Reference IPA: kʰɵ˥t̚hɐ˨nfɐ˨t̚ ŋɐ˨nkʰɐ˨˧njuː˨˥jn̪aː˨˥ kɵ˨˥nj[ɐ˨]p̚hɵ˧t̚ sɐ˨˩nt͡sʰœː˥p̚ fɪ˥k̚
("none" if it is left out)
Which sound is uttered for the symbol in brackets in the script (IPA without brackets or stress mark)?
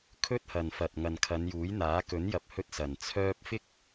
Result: ɐ˨